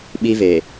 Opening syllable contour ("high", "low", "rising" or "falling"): high